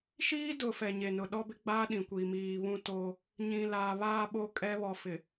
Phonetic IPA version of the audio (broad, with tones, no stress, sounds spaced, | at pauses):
ʃ iː˦ d ʊ˨ f ɛ˨ ɲ e˨ n ʊ˨ ɗ ɔ˦ b ɪ˦ ɡ͡b aː˦ ɗ ĩ˨ kʷ iː˨ m iː˨ β ũ˦ t o˦ | ɲ ĩ˨ l aː˨ β aː˦ ɓ o˦ kʼ ɛ˦ β ɔ˨ f ɪ˨